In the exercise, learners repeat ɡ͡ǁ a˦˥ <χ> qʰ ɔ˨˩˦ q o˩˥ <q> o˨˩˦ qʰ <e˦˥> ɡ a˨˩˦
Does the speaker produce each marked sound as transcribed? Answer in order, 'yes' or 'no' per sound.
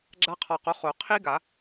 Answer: no, no, no

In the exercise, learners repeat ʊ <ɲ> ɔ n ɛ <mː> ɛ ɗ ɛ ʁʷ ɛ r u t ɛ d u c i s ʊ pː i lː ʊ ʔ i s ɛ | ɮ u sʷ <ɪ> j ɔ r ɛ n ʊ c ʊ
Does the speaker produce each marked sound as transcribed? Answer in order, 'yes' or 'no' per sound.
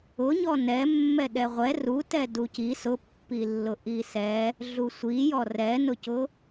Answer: yes, yes, no

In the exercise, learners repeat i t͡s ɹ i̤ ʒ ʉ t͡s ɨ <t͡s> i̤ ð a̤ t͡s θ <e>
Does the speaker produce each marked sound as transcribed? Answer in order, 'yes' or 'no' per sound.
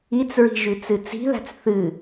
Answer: yes, no

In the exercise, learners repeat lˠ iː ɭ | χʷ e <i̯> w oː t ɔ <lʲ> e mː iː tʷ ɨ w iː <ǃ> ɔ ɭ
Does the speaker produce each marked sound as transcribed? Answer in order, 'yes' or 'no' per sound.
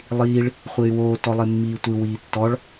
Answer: no, no, no

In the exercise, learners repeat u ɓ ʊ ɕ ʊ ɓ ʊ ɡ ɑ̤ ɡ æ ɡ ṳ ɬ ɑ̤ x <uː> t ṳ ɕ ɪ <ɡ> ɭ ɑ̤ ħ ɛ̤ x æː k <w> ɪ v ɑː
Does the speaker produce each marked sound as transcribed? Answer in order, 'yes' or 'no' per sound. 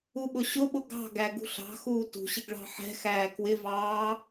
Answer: yes, yes, yes

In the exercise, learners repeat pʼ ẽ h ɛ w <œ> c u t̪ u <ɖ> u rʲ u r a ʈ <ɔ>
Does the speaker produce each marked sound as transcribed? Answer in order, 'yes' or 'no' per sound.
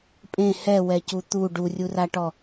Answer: no, yes, yes

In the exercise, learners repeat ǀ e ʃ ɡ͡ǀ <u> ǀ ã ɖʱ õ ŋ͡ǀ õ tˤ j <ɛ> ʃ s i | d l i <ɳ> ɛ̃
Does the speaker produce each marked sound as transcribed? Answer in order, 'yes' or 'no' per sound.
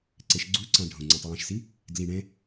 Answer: yes, no, yes

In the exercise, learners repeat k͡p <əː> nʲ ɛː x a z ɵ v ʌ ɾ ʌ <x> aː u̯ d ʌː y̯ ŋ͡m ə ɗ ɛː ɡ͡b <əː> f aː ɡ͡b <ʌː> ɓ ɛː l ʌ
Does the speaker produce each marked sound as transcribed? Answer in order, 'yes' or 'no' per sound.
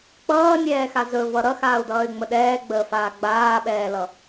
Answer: no, yes, yes, no

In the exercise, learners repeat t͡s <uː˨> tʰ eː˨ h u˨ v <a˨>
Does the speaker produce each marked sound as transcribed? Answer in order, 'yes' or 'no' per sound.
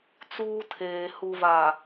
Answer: no, yes

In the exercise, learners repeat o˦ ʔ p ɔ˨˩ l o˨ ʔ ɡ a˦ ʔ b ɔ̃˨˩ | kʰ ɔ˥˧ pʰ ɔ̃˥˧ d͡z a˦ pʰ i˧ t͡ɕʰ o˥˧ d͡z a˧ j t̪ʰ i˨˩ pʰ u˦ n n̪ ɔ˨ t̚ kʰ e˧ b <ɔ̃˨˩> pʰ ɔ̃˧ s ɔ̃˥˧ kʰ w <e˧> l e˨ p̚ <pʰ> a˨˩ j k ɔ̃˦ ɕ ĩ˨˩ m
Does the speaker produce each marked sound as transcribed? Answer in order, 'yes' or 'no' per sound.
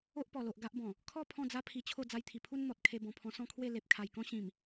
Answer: yes, no, no

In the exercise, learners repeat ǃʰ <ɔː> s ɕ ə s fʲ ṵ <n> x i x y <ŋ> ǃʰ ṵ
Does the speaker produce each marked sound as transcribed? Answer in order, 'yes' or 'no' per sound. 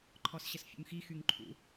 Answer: no, no, yes

